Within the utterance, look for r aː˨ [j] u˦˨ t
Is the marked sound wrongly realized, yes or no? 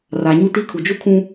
yes